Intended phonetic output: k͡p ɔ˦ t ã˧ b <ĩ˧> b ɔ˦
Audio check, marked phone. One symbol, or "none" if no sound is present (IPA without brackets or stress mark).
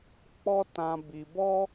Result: i˧